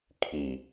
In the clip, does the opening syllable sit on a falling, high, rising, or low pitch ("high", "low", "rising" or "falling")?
low